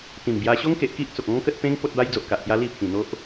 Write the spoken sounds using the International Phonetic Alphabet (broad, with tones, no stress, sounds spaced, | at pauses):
t̪ ĩ˨˩ m b j a˧ ɕ o˦ ŋ k e˨ ʔ k i˦ ʔ t͡s o˨ k̚ ɔ̃˦ ŋ k ə˦ t̚ p ẽ˦ ŋ p o˦ t̚ b a˧ j d͡z o˨ ʔ k a˨ ʔ t̪ j a˧ l i˥˧ pʰ ĩ˨˩ n̪ o˦ ʔ